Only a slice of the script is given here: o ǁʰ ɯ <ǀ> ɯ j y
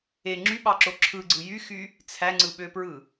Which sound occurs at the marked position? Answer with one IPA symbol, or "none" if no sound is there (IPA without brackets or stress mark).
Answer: ɡ͡ǀ